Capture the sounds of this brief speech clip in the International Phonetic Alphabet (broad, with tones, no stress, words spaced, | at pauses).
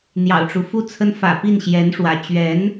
n̪jɑ̰˨˩ʊ̯ʈ͡ʂu˦ fu˥t͡sʰə˥n fä̰˨˩pi˥˩nɕjɛ˧˥n ʂwä̰˨˩ t͡ɕɥɛ˧˥n